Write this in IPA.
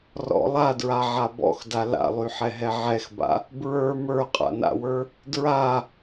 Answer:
rɔ̰ lˠadɹaʕa bɔ̰xda la̰lˠyħɛɦɛ ʕɛxba̰ | bɹə˞ mə˞qʼa̰na̰wə˞ | dɹa

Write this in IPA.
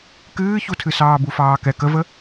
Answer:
kɨːçutʰɨsɑː bufɑːkɛ kəvə

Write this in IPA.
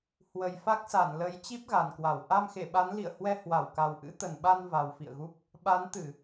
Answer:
hwə˨˩jfa˦˥k̚sa˧˩nlə˨˦j t͡ɕi˦˥p̚ɣa˨˩nkwa˧˩w ʔa˧mxe˧˩ɓa˨˦nlḭ˧˨ə̯ hwɛ˧hwa˧˩wka˨˩w ʔɨ̰˧˥t̪ə˨˩nɓa˧n va˨˩wfḭ˧˨ə̯ɣu˦˥p̚ | ɓa˨˦nt̪ɨ˧˩˨

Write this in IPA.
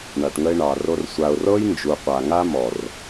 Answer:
ɳa˨ʈŋə˧ɪ̯ɳɑ˨ro˧r sʷa˨ʊ̯rɤ˦j nd͡ʒu˨qʷa˨ŋa˦mɔ˨r

